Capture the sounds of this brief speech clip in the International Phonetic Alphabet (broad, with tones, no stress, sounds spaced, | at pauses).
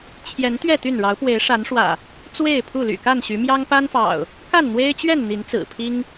t͡ɕʰ j ɛ˨˦ n t̪ ɥ ɛ˥˨ t̪ y˥˨ n ɻ ɑ˨˦ ʊ̯ p w e˨˦ ɪ̯ ʂ a˨˦ n ʂ w ä̰˨˩ | t͡s w e˥˨ ɪ̯ pʰ u˥˨ l y̰˨˩ k a˥˨ n ɕ y˨˦ m j ɑ˦ ŋ p a˦ n f ɑ̰˨˩ ʊ̯ | k a˥˨ n n̪ w e˦ ɪ̯ t͡ɕ ɥ ɛ˥˨ n n̪ i˨˦ n t͡s ɹ̩˨˩ pʰ i˦ ŋ